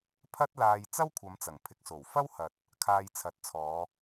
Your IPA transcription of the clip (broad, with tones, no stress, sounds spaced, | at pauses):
pʰ ɐ˥ t̚ l aː˧ j t͡s ɐ˥ w kʷʰ ɐ˨˧ m t͡s ɐ˨˩ ŋ pʰ ɪ˨ k̚ s o˨˩ w f ɐ˥ w h ɐ˨ t̚ | kʰ aː˧ j t͡sʰ ɐ˨˥ t̚ t͡sʰ ɔː˨˧